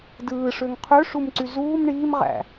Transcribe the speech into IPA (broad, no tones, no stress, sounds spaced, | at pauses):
d ɯː ʂ ø ŋ qʰ ø ʂ u m ǀ y z uː m ɳ iː m ʁ æ̰